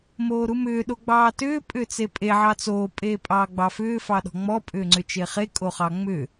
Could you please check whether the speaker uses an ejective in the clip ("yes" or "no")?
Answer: yes